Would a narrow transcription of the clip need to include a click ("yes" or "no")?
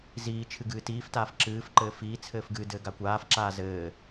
yes